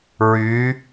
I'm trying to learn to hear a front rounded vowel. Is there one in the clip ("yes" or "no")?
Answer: yes